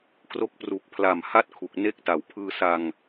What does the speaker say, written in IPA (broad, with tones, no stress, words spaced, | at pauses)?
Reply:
kro˦˥k̚ pru˨˩k̚pʰla˨˩mha˥˩t̚ kʰu˨˩k̚ne˥˩k̚ta˨˩w pʰɯː˧sa˧ŋ